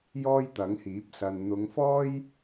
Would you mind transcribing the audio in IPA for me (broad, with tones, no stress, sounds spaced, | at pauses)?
j ɔː˥ j t̪ ɐ˨˥ ŋ h iː˨˥ p̚ s ɐ˧ n n̪ ʊ˨˧ ŋ f ɔː˥ j